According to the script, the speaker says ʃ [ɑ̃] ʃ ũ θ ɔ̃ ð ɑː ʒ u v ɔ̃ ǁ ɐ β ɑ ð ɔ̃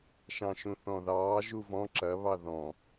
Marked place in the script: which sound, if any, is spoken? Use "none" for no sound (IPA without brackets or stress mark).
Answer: ɑ̃